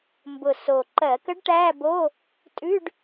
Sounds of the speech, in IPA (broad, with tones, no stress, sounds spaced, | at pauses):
m b ʊ˨˩ s o˨˩ ǃ ɜ˧˩˧ k ə˧˥ ɖ ʈ æ˧˥˧ b o˧˥˧ | tʼ ʉ˧˥˧ ɖ